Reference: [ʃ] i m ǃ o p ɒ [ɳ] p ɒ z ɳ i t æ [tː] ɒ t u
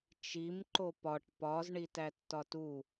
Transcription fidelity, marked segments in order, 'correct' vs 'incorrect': incorrect: t͡ʃ, incorrect: ʈ, correct

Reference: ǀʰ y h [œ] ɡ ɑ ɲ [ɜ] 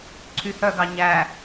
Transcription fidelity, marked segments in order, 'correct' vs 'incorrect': correct, incorrect: æ

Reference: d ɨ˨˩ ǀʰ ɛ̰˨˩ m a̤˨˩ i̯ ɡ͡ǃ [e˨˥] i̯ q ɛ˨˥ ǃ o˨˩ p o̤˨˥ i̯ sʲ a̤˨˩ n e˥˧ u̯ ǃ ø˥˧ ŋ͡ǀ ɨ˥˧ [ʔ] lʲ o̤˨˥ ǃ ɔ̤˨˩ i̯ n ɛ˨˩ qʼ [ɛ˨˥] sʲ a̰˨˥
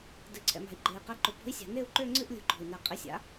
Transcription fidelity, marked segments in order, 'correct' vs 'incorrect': incorrect: e˨˩, correct, incorrect: ɪ˨˥

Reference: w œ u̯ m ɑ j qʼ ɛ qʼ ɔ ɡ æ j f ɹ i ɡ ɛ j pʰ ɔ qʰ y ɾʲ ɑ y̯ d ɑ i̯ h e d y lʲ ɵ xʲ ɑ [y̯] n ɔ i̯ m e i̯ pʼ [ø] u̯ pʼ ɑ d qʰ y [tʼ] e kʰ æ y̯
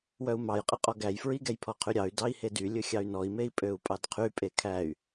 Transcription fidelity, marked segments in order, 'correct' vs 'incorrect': correct, correct, incorrect: pʼ

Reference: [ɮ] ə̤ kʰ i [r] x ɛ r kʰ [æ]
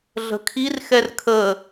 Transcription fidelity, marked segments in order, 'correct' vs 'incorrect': correct, correct, incorrect: ə

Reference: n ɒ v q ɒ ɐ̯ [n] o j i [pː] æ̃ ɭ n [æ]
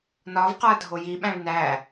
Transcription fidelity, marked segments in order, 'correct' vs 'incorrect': incorrect: dʱ, incorrect: ɓ, correct

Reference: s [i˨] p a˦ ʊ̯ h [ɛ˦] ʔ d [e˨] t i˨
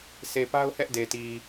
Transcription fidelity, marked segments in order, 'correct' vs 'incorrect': incorrect: e˨, correct, correct

